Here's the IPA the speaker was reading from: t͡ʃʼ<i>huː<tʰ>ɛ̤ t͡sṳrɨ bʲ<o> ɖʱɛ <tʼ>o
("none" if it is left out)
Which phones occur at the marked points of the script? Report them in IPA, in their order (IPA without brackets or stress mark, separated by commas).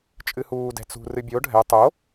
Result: ɨ, d, o, tˤ